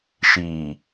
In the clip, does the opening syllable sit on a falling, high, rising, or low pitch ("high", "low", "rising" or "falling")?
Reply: low